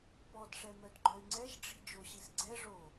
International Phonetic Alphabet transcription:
p ɔ d ʂ ɛ m œ d ɡ͡ǃ œ y̯ ŋ͡ǀ ɛ ʒ ɖ͡ʐ i̤ d͡ʒ o ɕ i s ɡ͡ǀ ɛ ʐ o

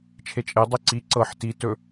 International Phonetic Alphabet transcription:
t͡ʃʰ e t͡ʃʼ e dˤ i ǀ i ǀ ɤ ħ t i t ɵ

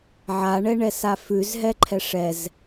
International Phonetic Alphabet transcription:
ʕ a ɳ ɛ ɳ ɛ s a f ʉ z ɦ ɛ ǃʰ ɛ ʂ ɛ z

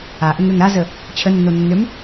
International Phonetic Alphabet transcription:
a ʔ ə ŋ ɾ ø ŋ ɾ a z ə | t͡ɕʰ ə nː o nː ø m

